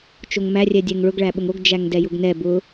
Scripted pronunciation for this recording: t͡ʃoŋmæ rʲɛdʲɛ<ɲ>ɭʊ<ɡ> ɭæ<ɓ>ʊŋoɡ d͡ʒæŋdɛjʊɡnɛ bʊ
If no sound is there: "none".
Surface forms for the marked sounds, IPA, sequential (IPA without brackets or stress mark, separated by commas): ŋ, ɡ, ɓ